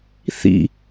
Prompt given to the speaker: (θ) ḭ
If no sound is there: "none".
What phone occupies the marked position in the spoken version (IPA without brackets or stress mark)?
θ